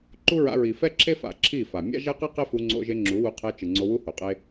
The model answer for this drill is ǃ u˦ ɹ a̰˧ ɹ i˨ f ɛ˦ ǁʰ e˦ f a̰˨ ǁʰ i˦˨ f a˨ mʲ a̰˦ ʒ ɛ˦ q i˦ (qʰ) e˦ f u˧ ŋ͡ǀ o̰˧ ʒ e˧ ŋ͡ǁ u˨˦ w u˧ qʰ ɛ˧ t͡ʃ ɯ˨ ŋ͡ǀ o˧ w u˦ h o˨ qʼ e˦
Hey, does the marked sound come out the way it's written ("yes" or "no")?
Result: no